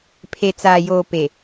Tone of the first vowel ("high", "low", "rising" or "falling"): low